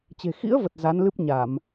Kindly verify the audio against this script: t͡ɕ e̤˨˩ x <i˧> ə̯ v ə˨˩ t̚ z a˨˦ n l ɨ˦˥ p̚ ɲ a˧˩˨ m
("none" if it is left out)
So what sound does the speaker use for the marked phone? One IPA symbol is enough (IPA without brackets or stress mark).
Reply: ḭ˧˥